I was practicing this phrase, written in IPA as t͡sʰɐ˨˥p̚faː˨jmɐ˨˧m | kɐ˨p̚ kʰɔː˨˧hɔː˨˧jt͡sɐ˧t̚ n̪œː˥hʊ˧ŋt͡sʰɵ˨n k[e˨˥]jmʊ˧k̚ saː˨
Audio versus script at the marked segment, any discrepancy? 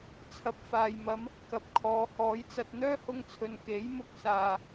no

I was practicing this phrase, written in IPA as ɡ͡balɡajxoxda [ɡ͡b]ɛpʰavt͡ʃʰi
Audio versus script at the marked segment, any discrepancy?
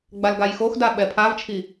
yes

